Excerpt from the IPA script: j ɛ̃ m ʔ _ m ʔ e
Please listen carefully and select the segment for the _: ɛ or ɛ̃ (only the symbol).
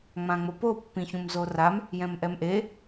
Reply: ɛ